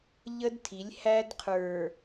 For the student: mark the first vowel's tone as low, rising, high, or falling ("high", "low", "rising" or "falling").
high